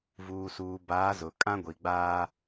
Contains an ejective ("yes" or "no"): yes